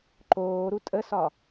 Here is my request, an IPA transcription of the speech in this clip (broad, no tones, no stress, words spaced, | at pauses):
ǃoːɾu tʼəsɒ